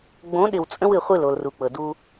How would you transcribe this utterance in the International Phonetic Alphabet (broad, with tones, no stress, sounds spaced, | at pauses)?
ɡ͡b õ˨˦ ɗ ɪ˨ w t͡sʼ ə̃˦ w ɨ˨ χʷ ɨ˦˨ l o˨ l r u˨ k͡p ɤ˨ d u˦